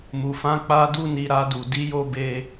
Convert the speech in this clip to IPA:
m u˨ f ã˧ k͡p a˧ d u˧ n i˨ ɾ a˧ d u˨ d i˨˦ j o˧ b e˧

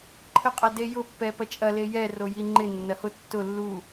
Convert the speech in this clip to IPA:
ǃʰ ə qʼ ɐ d e j ʊ pː ɛ p ɐ t͡ʃʼ ɐ l e j ɛ r o j i ŋ͡ǃ ɪ nː ɐ h ʊ tː ʊ lː u

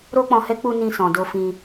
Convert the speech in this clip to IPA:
ɾ o˦ k͡p ɔ̃˧ h ɛ˦ k͡p u˧ n ĩ˧ s ɔ̃˨ d o˧ f ĩ˧

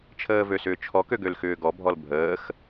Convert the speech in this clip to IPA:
t͡ʃʰ əː v ø s ʏː t͡ʃʰ ɔ k ø ɡ ø l x ʏː ɡ ɔ bʱ ɔ l bʱ əː x

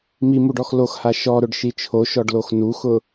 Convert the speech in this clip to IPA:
m i m u ɖ ɔ x l o x h a ʃ ɔ ɾ ʊ ɖ ʃ i t͡ʃʰ o ʃ ɔ ɖ l o x n u x ʊ

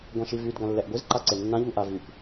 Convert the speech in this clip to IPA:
ɡʷ ã ʃ i v y d ɡ ã lː ɛ ʔ ɡʷ i z ǃ a ǀ e nː ã ʎ u ʔ a v y p

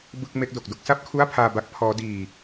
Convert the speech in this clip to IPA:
b ɯ˥˩ k̚ m e˦˥ k̚ d o˨˩ k̚ d o˥˩ k̚ s a˥˩ p̚ kʰ u˥˩ a̯ pʰ aː˧ b a˦˥ k̚ pʰ ɔː˦˥ d iː˧

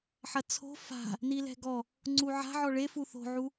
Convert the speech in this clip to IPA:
ħ ɐ t͡sʰ o̤ f a̤ | n i l ɛ̤ ɡ ɔ | ŋ͡ǀ u ʕ a̤ ʕ ɔ ɭ e f u θ o̤ ʕ u

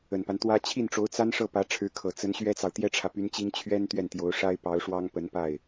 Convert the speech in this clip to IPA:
ə˨˩ n p a˦ n t̪ w ä˥ t͡ɕʰ i˥˩ n ʈ͡ʂ o˧˥ ʊ̯ t͡s a˥ n ʂ ɤ˥˩ p ä˧˥ ʈ͡ʂʰ ɻ̩˧˥ kʰ ɤ˨˩ t͡s ə˧˥ n ɕ ɥ ɛ˥ t͡s ɑ˨ ʊ̯ t̪ j ɛ˥ ʈ͡ʂʰ ä˨ p y˧˥ n t͡ɕ i˥ ŋ t͡ɕʰ ɥ ɛ˥ n t̪ ɥ ɛ˥˩ n t̪ j o˧˥ ʊ̯ ʂ a˥ ɪ̯ p ɑ˧˥ ʊ̯ ʂ w ɑ˥ ŋ p ə˧˥ n p a˥˩ ɪ̯

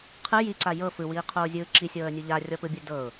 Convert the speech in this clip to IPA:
qʰ ɯ j i ǀ a j ɤ f ɯ w iː qʰ oː zʲ ɯː ǁ i sʲ ɤː ə̯ nʲ u ʎ a rʲ ɔ p ɯ bʲ ɯ d ɤ ʊ̯

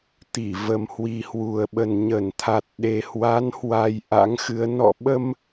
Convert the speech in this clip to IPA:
t̪ i˧˩ v ə˨˩ m h w i˨˩ h w u˨˩ ə̯ ɓ ə˨˩ n ɲ ə˧˩ n t̪ʰ a˨˩ t̚ ɗ e˨˩ h w a˨˦ n h w a˧ j ʔ a̰˧˥ ŋ x ɨ˨˦ ə̯ n ɔ̰˧˨ ɓ ə˧ m

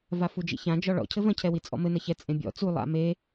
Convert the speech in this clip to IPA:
v a f u d͡ʒ ḭ ç ã d͡ʒ ɔ ɭ ɔ̰ cʰ ɘ v ɐ̃ cʰ ɛ w i t͡sʼ ɔ̰ m ɘ n ɐ ç ɛ t͡sʼ ẽ bʲ ɔ̰ t͡s u lˠ a̰ m e

